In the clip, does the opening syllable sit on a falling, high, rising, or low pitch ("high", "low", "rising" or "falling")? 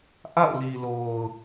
falling